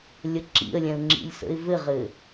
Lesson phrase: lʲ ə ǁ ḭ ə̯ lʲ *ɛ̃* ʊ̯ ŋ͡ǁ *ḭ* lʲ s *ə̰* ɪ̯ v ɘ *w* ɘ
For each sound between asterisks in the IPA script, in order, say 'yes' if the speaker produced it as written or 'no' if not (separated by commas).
yes, yes, yes, no